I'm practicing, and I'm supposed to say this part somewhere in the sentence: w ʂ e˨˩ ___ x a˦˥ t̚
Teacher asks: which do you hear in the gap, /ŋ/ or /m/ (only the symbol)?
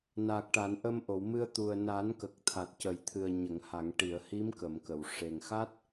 ŋ